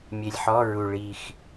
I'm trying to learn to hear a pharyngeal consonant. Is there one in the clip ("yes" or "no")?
yes